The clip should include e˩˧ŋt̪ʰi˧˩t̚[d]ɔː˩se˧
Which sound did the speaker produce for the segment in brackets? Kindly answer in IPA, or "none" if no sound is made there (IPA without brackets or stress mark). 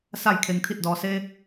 d